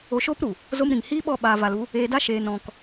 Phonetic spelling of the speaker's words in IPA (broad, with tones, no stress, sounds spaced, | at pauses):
o˧ ʃ oː˦ p ɾ u˨ | z o˦ m ɾ ĩ˨ ŋ h iː˦ ɓ ɔ˦˨ ɓ aː˧ v a˧ l u˦ | eː˧ d a˦ ʃ eː˧ n ɔ̃˧ k